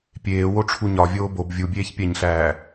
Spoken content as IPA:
pʲ eː w o ʈ͡ʂʰ u ɲ ɒ vʲ oː b o b vʲ u bʲ eː ç pʲ æ ɲ ɬ æː

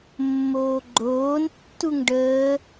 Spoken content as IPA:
mː oː ɡ͡ǃ oː n tː u ŋ ɖ əː

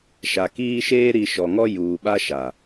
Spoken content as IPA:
ʃ a˨ k iː˦ ʃ eː˦ ɾ i˨ ʃ ɔ˨ ŋ ɔ˦ j uː˨ ɓ a˦ ʃ a˨

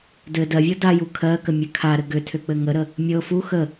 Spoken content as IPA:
d ɘ d ɜ vʲ ɤ d a j u kʰ ɜ k ə mʲ ɘ kʰ a ɾ ɘ ɡ ʏ tʰ ʏ k͡p ɘ ŋ ə ɾ ə | mʲ ɤ f u x ə

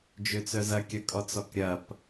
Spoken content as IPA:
d͡ʒ ø t͡s œ z ɐ kʲ ɐ kʼ ɔ t͡s ɔ k ɾʲ ɐ p

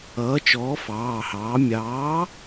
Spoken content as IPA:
ʌː˨˥ t͡ʃ ɔː˨˥ f ɑː˩˧˩ h ɑː˨˥ mʲ ɑː˨˥

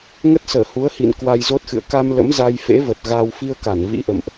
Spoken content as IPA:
ŋ ə˦˥ t̚ s əː˧˩ h u˨˦ ə̯ h ḭ˧˨ n k w a˧ j z o˦˥ t̚ x ɨ̰˧˨ ə̯ k a˧ m l ə̰˧˥ m z a˧ j f ḛ˧˥ v ə˨˩ t̚ ɣ a˧ w f i˧ ə̯ k a˧˩ n v ḭ˧˥ ʔ ə̰˧˨ m ʔ

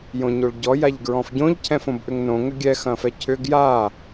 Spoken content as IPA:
j õ ɲ o ɭ ɟ ɔ j a ʎ ɡ ɹ ɔ̃ f ɟ õ ʎ cʰ ɛ̃ f õ b ʔ ʏ ŋ n õ ŋ ʏ ɡʲ ɛ x ɐ̃ f ɛ cʰ ʏ ɡ j a

